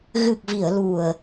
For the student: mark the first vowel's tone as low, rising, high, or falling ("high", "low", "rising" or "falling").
low